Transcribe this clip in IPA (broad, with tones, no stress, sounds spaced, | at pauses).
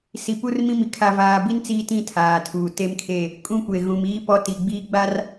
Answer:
s i˨ p u˦ r m ĩ˦ m i˨ kʰ a˨ v aː˨ b i˦ n t͡s iː˦ t ĩ˦˨ tʰ aː˨ tʰ uː˨ t e˦ m kʰ e˦˨ | kʼ ũ˦ kʷ e˨ ɣ ũ˨ m iː˦ p ɔ˦ t i˨ ɡ͡b iː˦ ɡ͡b a˦ r